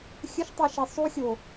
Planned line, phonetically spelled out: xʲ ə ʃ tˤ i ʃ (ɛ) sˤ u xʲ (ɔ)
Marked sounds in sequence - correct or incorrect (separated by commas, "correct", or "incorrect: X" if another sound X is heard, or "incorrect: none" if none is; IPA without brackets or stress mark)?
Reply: correct, incorrect: o